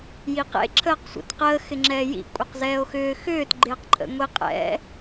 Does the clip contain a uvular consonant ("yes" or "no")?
yes